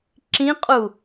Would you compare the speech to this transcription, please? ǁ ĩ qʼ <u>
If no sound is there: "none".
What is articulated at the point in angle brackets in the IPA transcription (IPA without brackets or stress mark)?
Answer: u